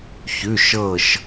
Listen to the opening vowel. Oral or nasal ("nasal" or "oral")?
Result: oral